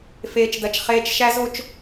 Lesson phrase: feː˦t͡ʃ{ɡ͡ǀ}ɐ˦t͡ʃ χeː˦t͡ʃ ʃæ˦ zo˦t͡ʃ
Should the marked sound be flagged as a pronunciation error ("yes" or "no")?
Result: yes